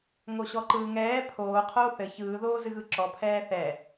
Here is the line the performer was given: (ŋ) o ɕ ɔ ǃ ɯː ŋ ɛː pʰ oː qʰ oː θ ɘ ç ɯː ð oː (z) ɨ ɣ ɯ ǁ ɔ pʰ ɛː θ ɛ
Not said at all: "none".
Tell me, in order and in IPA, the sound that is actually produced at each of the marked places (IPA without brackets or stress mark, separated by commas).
ŋ, z